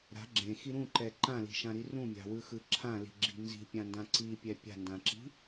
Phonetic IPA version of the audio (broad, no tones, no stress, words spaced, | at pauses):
ɾa̤ ɡ͡ǁẽxi ɾũǃɛ ǃãli̤ʃãɾi rũmʲa̤wɯxɯ ǁʰãli̤ɡ͡ǁi̤ nzi̤pʲãndã ǀipʲɛ pʲa̤ndãǁi̤